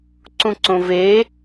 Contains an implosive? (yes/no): no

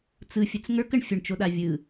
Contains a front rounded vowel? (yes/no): no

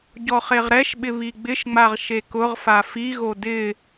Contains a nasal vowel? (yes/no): no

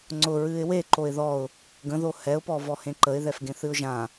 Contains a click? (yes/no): yes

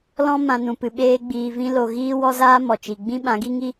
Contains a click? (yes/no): no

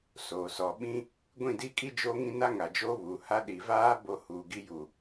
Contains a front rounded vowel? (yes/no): no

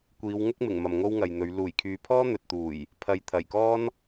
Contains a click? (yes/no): no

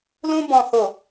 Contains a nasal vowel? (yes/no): yes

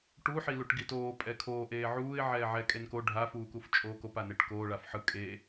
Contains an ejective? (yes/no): yes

